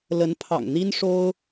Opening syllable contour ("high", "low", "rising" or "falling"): rising